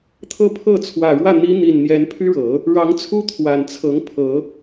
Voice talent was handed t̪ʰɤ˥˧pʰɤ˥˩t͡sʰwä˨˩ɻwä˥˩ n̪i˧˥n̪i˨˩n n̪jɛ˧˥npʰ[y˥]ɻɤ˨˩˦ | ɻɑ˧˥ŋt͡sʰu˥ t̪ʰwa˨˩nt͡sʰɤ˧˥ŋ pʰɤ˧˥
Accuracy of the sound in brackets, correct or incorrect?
correct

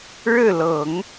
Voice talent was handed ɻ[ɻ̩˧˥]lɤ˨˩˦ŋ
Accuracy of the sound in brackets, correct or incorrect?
incorrect: ɻ̩˥˩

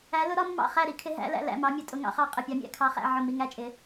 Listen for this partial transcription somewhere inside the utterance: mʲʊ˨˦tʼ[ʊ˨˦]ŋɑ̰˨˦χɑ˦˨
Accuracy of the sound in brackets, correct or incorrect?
correct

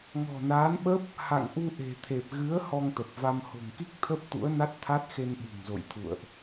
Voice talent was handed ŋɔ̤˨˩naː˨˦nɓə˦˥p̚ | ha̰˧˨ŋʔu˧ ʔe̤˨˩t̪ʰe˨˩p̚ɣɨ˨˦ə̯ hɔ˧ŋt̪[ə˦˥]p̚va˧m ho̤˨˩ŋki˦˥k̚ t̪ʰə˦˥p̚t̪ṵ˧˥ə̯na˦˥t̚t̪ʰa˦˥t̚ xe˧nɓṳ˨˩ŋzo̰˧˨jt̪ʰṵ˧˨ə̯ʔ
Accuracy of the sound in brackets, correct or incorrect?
incorrect: ə˨˩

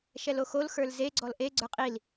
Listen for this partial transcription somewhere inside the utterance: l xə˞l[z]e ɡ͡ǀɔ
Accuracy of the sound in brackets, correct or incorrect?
correct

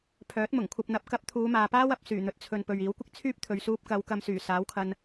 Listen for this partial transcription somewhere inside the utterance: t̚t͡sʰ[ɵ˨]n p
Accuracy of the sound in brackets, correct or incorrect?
correct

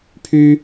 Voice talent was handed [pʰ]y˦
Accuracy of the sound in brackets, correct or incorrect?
correct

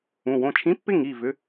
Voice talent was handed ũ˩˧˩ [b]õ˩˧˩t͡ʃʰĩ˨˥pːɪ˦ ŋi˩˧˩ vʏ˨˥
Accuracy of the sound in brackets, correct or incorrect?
incorrect: w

